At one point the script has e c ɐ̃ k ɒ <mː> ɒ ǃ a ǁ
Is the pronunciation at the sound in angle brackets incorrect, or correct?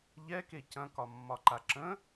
correct